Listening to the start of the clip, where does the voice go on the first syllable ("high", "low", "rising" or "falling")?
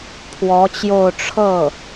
rising